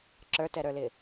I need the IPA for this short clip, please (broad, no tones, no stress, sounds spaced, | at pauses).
ǁ ə˞ t ɛ ɾ ə˞ l ɪ